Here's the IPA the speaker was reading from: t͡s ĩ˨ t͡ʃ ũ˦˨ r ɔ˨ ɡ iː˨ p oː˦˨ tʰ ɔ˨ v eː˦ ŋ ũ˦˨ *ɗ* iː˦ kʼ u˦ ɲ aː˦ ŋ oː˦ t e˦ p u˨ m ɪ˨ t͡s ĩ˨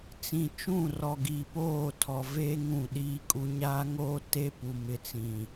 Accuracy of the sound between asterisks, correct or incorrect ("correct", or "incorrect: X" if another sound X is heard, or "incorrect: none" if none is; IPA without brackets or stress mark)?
correct